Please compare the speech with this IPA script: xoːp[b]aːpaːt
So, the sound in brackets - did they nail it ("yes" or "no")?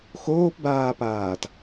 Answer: yes